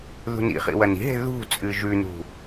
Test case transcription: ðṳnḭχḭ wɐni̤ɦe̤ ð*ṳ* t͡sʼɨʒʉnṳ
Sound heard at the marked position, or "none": ṳ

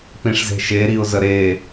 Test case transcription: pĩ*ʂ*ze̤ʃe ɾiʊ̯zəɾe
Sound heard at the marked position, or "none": ʂ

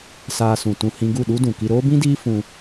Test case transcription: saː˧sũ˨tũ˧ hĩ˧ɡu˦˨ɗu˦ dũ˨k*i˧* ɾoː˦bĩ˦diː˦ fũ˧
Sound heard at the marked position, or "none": i˧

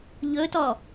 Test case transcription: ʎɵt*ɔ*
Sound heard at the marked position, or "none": ɔ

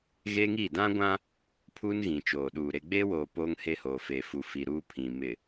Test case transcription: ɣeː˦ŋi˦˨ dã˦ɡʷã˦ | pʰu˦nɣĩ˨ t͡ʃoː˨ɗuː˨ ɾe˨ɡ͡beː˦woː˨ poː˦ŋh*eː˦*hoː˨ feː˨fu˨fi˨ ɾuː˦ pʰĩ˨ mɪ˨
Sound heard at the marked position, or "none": e˦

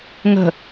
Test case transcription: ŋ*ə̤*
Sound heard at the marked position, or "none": ə̤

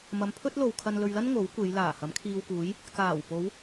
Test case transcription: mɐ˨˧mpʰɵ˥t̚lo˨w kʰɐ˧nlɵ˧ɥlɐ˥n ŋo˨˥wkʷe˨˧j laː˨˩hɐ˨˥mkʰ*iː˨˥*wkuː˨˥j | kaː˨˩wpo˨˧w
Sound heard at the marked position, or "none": iː˧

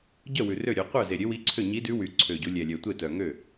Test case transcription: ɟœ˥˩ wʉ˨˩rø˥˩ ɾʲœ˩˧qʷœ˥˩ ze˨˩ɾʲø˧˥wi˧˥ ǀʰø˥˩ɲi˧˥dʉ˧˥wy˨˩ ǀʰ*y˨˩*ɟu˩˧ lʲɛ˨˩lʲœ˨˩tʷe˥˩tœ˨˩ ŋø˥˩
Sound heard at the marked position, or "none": ø˨˩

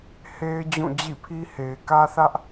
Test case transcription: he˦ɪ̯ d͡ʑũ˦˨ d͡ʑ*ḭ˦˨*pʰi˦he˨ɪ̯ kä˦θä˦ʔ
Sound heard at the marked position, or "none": ḭ˦˨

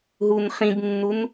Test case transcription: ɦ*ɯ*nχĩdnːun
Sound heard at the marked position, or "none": u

